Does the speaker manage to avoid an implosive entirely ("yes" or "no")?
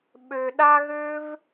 no